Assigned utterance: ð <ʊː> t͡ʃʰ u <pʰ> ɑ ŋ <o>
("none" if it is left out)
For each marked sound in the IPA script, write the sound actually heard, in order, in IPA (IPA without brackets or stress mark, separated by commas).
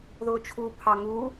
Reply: ʊː, pʰ, u